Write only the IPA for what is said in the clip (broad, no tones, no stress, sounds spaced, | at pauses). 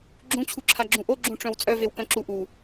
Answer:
ɡ͡ǁ ũ t͡ɕʰ u ǁʰ a ɡ͡ǁ ũ ʔ o ɡ͡ǁ ũ ʈ͡ʂ œ̃ w t͡sʼ œ v e w k œ̃ ǁ u ʔ u